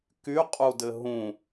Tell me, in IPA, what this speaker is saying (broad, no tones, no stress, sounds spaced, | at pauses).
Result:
k y qʼ u d ɘ ɦ ũ